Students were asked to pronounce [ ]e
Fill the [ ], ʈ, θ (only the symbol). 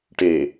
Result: ʈ